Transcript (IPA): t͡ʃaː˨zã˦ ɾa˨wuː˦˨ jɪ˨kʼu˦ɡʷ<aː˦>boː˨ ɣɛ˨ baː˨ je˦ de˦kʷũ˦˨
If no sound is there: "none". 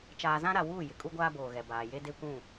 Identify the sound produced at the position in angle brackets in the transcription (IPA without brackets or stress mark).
aː˦